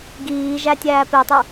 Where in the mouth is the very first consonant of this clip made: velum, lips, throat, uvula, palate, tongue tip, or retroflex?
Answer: velum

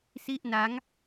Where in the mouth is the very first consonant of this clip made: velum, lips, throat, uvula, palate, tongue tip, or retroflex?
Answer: tongue tip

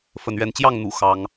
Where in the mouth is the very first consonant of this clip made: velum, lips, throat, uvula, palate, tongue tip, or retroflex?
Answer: lips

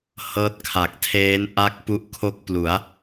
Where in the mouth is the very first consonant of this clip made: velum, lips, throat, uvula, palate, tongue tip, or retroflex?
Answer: throat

